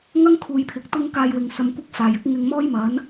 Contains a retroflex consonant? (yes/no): no